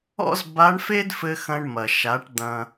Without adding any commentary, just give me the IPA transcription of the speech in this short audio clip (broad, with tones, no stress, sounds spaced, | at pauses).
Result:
ɔ̰˥ z b a˧˥ ɳ f e˥ d f ɘ˧ x ɐ̃˧ ɳ m ɐ˩ ʃ a˩˧ ʈ d̪ ɐ̃˧